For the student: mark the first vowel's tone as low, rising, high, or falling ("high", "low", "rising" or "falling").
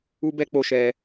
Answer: high